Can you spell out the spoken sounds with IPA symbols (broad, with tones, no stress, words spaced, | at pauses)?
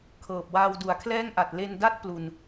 kʰɤː˨˩p̚waː˧w du˨˩a̯kʰlɛː˥˩ŋʔa˨˩t̚ le˧nda˥˩t̚ plu˧n